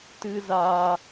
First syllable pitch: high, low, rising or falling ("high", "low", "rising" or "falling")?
high